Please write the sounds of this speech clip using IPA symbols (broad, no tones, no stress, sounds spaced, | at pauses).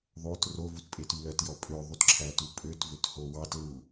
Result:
ðˤ o t r o v u t pʼ e t y l œ t j ɔ pʼ ø ðˤ u t ǁʰ æ t u pʼ ø t v ø t h o w ɑ t l u